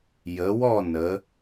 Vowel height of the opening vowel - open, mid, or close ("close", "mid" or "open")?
mid